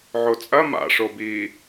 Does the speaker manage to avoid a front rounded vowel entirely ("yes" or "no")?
yes